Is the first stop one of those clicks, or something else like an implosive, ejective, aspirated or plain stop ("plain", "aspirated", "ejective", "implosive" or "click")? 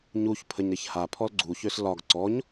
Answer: aspirated